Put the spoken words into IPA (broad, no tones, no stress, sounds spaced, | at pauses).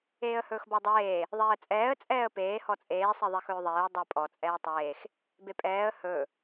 eː ə̯ h ɵː x b ɔ dˤ eː | ðˤ eː ə̯ t͡sʼ ɛː ə̯ t͡sʼ ɛː ə̯ p eː h ɔ t͡sʼ eː sˤ e ðˤ e x ɵː ðˤ eː ə̯ dˤ ɛ pʼ ɔ t͡sʼ ɛː tˤ eː x | b e pʼ ɛː ə̯ h ɵ